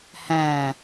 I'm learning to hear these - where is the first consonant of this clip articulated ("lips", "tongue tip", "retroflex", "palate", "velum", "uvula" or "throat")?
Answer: throat